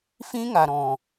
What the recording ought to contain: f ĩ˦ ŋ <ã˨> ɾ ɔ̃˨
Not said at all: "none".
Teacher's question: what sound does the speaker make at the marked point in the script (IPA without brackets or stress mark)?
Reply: a˨